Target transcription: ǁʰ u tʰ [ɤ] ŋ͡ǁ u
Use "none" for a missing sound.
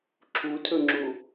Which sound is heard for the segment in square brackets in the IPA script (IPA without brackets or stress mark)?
ɵ